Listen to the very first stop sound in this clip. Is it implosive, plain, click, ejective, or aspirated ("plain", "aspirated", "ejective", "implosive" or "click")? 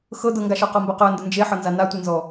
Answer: plain